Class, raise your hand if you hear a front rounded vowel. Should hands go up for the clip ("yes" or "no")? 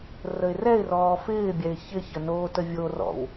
no